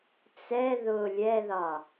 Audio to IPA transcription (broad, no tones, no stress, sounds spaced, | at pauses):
t͡s ɛ ð ʊ lʲ ɛ ð ɒ